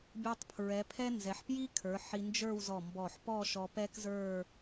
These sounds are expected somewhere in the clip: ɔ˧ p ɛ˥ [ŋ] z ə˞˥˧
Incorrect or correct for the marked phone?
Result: incorrect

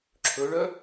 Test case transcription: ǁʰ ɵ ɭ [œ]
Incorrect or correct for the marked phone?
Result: correct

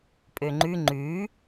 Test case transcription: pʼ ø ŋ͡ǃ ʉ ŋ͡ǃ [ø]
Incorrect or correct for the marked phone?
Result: incorrect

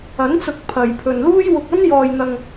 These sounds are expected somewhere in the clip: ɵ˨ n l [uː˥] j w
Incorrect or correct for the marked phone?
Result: correct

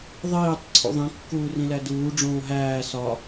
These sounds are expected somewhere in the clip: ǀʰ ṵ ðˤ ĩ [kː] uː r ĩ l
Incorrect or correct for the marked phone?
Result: correct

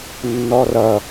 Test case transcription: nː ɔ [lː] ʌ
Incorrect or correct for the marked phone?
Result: incorrect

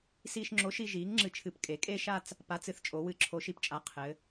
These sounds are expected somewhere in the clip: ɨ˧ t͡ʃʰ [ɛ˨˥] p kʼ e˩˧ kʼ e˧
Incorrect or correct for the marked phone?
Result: incorrect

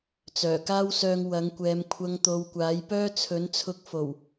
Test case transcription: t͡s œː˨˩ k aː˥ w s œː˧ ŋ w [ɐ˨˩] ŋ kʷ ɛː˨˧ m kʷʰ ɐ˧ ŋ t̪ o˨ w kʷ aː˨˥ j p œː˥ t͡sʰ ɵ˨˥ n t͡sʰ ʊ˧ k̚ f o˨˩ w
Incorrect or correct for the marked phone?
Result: incorrect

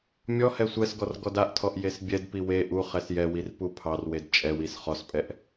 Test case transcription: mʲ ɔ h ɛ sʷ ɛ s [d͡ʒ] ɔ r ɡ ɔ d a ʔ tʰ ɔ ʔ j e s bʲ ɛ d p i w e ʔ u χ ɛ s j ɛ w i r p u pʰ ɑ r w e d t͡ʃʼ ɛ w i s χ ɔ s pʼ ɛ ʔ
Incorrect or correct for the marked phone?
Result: incorrect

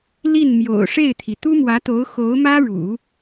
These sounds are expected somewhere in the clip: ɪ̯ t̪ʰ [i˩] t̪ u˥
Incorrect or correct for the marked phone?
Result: correct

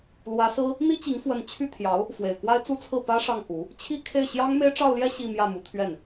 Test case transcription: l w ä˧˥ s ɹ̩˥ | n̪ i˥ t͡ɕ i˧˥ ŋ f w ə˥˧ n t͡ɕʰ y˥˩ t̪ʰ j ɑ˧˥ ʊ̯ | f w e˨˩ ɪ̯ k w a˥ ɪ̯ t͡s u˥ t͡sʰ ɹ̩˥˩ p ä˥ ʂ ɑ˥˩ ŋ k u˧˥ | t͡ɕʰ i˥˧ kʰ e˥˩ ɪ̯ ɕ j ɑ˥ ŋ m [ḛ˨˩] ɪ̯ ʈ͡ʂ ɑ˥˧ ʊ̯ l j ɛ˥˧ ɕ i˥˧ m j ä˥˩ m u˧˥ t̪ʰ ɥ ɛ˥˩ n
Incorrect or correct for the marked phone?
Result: incorrect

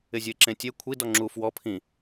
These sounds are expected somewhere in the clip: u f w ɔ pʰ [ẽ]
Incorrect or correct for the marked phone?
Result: incorrect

